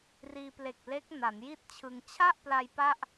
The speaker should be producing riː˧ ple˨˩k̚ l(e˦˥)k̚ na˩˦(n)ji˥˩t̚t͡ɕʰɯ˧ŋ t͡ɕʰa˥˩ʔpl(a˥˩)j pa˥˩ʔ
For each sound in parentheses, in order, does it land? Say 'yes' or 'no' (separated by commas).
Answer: yes, yes, no